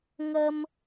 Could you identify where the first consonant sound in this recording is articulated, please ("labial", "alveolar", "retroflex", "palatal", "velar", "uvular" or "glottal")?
velar